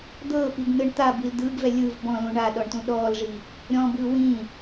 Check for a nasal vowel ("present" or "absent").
present